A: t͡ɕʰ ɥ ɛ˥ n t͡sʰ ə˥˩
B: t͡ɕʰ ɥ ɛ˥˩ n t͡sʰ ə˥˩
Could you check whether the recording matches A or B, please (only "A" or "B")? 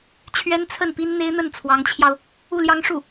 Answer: A